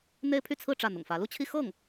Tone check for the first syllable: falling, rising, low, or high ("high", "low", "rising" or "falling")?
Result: high